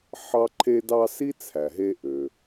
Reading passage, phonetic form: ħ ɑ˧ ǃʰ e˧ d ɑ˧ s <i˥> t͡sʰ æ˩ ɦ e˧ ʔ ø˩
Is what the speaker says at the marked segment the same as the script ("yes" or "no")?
yes